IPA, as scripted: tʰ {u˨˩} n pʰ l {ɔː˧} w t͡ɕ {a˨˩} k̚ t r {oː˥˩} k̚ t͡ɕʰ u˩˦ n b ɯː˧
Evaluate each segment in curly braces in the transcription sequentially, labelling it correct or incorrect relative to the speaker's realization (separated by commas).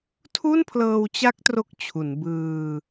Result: incorrect, incorrect, incorrect, incorrect